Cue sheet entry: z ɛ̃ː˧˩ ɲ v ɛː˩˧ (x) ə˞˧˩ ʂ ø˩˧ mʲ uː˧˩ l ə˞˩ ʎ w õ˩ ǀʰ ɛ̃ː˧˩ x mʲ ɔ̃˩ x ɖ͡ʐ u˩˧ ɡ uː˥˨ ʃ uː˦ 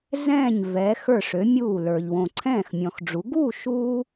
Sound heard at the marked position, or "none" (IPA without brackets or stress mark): x